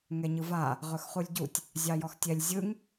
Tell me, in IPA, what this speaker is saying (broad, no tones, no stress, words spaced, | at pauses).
ŋɛɲɯva | ʁɵxχulʲɟutʲ | zʲɑjɔxtʲɛlʲ zʲɯŋ